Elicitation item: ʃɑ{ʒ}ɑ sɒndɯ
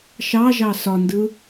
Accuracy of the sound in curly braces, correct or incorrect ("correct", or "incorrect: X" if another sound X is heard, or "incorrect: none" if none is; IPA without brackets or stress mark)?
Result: correct